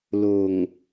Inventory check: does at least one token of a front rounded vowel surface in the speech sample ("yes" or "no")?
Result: no